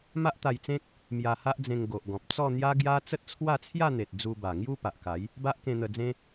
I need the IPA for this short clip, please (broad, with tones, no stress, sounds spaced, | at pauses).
m a˦ ʔ t̪ a˧ j t͡s ẽ˦ k̚ | m j a˧ h a˦ ʔ d͡z ẽ˧ ŋ ɡ o˨ ʔ ɡ ɔ̃˨ p̚ t͡s ɔ˥˧ n̪ j a˦ ɡ j a˦ t͡s ə˦ t̚ t͡sʰ w a˥˧ t͡sʰ j a˥˧ n̪ e˨ t̚ d͡z u˧ b a˨˩ ŋ j u˥˧ p a˨ ʔ k a˨˦ j | b a˦ ʔ k ẽ˧ n̪ ə˧ d͡z ẽ˦